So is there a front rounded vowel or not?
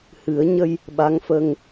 no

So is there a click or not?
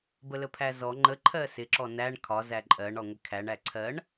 yes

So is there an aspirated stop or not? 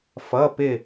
no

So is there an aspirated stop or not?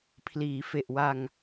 yes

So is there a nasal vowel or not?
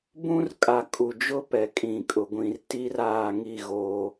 yes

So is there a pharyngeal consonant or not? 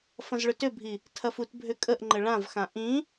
no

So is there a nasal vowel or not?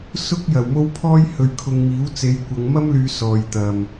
no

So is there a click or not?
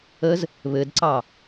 yes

